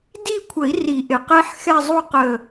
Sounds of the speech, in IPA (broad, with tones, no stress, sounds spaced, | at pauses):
d i˥˧ kʷʰ ə˨˩˦ i̯ r i˨˩˦ ʔ ɪ˩ q ɛ˦˥ ħ x ɛ˥˧ zˤ u˥˧ q ə˧˩